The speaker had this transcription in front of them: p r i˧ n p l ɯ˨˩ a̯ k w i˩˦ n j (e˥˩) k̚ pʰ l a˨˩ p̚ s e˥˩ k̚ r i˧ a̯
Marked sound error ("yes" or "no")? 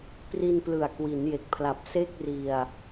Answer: yes